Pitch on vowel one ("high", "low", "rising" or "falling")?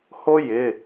high